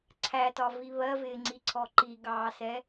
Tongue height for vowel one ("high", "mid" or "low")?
low